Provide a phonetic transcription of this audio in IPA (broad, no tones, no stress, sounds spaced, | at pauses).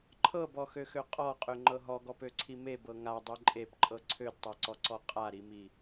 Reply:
ǃʰ ɤ b ɔ x ø x ø qʼ ɔ qʼ ø ŋ͡ǃ ɤ ɦ ɔ ɡ ɔ p ø ǀʰ i m e b ɤ ŋ a dˤ i ǃʼ e p ǃʼ ɤ ǀʰ ø d tˤ ɤ ǀ ɔ ǀ ɔ qʼ a ɾ i m i